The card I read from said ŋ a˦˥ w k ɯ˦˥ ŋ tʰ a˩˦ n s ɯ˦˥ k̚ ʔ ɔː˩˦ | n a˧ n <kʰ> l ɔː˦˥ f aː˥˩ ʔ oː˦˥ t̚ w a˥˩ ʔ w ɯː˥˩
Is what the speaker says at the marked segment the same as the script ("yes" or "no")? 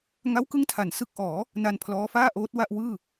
no